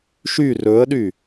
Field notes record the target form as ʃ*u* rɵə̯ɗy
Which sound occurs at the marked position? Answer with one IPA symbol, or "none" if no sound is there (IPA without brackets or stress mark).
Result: y